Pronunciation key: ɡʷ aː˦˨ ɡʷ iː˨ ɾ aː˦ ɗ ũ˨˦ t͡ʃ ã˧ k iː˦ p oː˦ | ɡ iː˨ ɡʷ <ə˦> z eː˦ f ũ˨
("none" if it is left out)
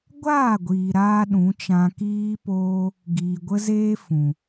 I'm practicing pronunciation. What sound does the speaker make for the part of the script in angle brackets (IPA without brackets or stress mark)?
ə˦